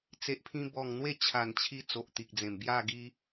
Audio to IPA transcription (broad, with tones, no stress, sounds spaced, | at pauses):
t͡s e˨ ʔ pʰ ĩ˧ b ɔ˨˩ ŋ n̪ w e˥˧ t͡ɕʰ a˨˩ n t͡ɕʰ i˧ t͡s o˨ ʔ t̪ i˨ k̚ d͡z ẽ˨˩ m b j a˥˧ ɡ i˦